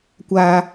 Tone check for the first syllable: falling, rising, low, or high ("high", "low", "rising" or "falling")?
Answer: high